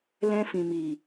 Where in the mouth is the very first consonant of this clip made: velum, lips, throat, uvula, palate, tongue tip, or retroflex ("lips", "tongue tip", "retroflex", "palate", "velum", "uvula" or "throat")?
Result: tongue tip